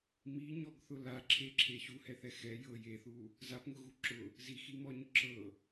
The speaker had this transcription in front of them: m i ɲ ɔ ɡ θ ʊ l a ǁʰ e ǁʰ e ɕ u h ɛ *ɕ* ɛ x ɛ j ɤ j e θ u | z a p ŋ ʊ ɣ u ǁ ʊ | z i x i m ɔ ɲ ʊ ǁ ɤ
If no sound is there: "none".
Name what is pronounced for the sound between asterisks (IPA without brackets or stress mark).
θ